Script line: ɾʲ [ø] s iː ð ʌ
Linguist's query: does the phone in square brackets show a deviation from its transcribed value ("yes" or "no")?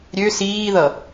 no